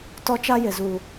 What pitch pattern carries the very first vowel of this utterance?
high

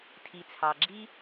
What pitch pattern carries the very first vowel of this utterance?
low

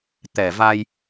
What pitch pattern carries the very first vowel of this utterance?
low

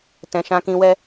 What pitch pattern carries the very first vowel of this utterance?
low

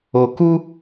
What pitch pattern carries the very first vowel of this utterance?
low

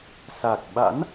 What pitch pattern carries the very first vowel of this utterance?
low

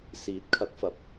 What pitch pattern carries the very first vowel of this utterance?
rising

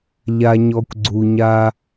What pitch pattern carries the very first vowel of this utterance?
low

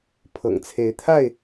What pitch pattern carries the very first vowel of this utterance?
low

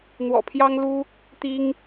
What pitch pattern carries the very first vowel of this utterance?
low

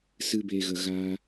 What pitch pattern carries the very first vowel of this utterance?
high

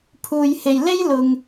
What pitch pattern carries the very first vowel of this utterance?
low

